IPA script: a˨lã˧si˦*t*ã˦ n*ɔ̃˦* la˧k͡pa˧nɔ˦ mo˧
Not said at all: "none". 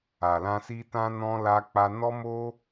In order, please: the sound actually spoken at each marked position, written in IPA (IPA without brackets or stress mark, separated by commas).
t, ɔ̃˧